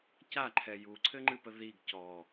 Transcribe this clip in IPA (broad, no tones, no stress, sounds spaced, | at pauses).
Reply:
c a ǃʰ ɛ j u ǀʰ ɘ ŋ͡ǃ ɨ p ə ð i ɡ c ɔ